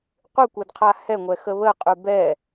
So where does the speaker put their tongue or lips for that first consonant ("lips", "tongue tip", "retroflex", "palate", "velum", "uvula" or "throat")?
uvula